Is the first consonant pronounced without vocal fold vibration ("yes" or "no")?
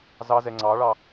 no